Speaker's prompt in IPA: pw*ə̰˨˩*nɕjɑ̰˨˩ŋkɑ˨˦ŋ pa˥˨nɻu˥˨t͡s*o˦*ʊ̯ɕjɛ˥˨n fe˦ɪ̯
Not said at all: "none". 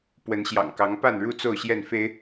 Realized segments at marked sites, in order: ə˨˦, o˥˨

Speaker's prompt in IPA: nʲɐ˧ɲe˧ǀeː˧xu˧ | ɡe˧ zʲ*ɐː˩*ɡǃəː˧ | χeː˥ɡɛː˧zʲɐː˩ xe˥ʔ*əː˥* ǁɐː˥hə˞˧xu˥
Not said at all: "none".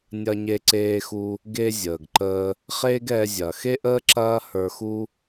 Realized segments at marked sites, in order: əː˩, əː˥

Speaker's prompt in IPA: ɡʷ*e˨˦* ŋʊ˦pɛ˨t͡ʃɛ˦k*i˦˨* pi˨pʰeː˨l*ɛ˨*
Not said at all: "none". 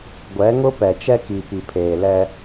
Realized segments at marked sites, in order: ɛ˨˦, i˨, ɛ˦

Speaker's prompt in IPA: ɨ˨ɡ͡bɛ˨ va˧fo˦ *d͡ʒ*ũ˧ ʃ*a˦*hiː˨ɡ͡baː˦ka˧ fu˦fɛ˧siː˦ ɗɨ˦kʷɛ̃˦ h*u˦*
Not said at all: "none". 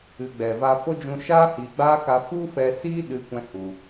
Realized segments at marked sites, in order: d͡ʒ, aː˦, u˧

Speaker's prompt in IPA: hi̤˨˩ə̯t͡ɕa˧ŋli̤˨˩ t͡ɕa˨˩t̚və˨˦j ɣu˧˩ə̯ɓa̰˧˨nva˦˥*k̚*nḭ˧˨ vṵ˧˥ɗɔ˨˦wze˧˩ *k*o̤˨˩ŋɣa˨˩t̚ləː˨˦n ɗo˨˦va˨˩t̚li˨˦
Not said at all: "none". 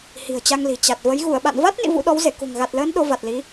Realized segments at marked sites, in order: t̚, k

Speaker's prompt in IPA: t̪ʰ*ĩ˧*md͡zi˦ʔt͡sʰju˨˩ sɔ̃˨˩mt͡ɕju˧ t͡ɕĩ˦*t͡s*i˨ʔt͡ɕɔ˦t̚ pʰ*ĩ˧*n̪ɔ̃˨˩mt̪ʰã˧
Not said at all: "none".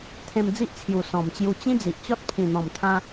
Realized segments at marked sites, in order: ẽ˧, d͡z, ĩ˨˩

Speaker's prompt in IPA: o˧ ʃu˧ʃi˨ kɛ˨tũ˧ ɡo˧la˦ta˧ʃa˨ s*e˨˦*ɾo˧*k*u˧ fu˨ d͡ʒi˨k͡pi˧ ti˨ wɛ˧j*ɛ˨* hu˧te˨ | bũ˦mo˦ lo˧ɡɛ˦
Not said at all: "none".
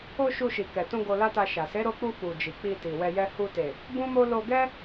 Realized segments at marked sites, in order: e˨˦, k͡p, ɛ˦

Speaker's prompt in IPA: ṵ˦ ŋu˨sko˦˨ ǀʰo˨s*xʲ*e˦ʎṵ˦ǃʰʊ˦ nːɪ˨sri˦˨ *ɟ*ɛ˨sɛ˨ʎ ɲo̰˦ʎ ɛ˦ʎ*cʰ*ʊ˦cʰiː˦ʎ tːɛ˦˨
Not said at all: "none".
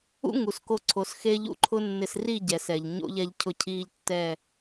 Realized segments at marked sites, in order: x, ɟ, cʰ

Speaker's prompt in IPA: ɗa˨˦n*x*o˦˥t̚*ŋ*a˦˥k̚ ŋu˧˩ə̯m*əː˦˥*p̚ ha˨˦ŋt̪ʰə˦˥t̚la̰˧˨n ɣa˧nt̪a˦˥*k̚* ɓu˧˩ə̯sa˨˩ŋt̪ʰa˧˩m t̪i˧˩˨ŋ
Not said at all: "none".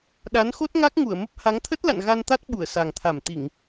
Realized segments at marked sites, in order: x, ŋ, ə˦˥, t̚

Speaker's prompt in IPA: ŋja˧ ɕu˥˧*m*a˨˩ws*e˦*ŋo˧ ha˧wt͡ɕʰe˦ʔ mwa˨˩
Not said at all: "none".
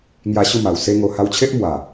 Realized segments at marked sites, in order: m, e˦

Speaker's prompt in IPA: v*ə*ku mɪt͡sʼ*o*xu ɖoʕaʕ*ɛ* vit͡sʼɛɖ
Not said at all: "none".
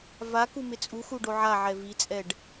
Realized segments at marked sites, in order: a, u, ɛ

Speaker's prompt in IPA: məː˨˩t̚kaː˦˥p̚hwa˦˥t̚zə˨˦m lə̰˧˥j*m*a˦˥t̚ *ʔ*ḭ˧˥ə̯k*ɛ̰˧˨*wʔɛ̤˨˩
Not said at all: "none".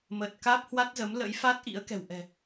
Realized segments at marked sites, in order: f, ʔ, ɛ̤˨˩

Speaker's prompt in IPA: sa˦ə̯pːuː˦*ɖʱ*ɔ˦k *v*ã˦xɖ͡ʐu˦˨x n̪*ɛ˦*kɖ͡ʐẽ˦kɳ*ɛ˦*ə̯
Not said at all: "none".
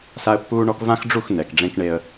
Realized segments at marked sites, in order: ɳ, v, ɛ˨, e˦

